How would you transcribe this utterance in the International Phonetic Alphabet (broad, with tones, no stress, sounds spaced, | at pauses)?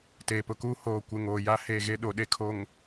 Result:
t eː˨ p ʊ˨ k uː˦ h oː˨ kʷ ɪ˨ ŋ oː˨ j a˦ h e˦˨ ɣ e˦ ɗ o˨ ɗ e˨ kʰ o˨ ŋ